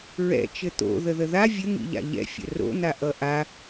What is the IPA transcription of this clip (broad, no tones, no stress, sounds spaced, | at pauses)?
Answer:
ɹ ɛ̰ t͡ʃ ɘ t̪ o̰ ð ə ð ə ð a vʲ ə ŋ ḭ ʎ a̰ ʎ ɛ̰ fʲ ə̰ r o̰ n̪ a ʔ ʌ ʔ a